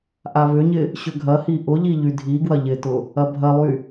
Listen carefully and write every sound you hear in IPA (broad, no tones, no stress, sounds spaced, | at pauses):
ʔ a β ʏ ɲ ɪ | ɕ ʏ ɡʱ ɐ h i ʔ ʊ ʎ i ʎ y dʱ i ɡ w ɐ ʎ ɪ t ʊ | ɐ bʱ ɐ lˠ y